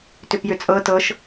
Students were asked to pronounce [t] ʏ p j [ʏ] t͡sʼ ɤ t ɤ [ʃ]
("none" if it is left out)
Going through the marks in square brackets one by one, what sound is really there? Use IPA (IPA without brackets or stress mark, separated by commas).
t, ʏ, ʃ